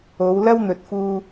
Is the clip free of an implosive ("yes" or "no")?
yes